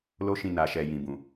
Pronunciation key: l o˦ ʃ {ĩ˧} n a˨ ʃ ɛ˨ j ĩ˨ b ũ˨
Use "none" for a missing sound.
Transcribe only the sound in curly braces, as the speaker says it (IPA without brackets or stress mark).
ĩ˧